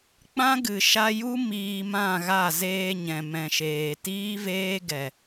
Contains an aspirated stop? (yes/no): no